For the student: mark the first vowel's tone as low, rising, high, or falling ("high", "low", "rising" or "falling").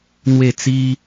falling